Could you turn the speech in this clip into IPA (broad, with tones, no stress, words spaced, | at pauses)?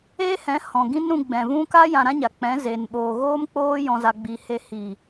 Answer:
e˦hɛ̃˨˦ hɔ̃˨ɡĩ˦n ɾũ˧ɡ͡bɛ̃˨vũ˦ ka˦ jã˧ɾã˦ɲa˨k͡pɛ̃˨˦ zeː˨nɓoː˨ ɣoː˦mk͡poː˦ jɔ̃˧za˧ɡ͡biː˧he˧ hi˨